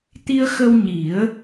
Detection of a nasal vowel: absent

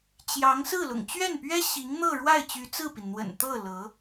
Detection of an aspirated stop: absent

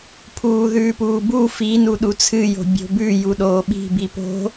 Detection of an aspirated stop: present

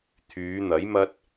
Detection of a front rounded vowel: present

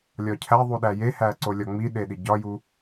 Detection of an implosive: present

